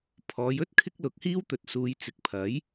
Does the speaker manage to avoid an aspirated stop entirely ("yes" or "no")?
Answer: no